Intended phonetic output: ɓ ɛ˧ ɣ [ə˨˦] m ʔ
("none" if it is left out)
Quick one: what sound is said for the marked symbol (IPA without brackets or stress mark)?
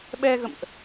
ə̰˧˨